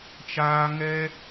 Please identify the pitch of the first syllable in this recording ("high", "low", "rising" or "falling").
high